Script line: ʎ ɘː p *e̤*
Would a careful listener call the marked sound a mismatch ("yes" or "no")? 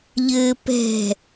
yes